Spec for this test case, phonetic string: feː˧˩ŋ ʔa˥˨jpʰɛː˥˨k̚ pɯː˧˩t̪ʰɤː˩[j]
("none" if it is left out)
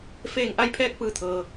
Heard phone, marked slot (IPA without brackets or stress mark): none